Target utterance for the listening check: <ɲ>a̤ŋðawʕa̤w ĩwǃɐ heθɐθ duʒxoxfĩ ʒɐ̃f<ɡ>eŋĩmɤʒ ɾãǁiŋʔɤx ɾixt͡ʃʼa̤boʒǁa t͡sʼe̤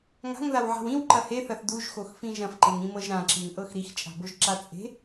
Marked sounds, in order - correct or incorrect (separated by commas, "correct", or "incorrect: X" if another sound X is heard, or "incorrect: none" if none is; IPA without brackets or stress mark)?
incorrect: ŋ, incorrect: ǃ